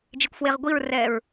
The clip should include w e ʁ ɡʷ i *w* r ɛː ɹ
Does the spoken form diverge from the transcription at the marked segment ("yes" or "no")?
yes